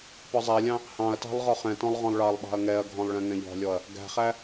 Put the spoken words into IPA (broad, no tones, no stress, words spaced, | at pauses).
pɒzˤælʲɑ̃ | hɑ̃ɐ̯tɑ̤lˠ ʁɒχɛ̃tɔ̃lˠ ʁɔ̃lˠɭɑlˠɓɑ̤ɐ̯ ŋɛɐ̯ɡʱɔ̃lˠ ɭɛ̃ŋɛ̃ʎɔ̤lʲɔɐ̯ | ɡæ̤χæ